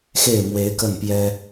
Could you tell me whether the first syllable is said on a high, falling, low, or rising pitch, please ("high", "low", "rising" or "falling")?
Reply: falling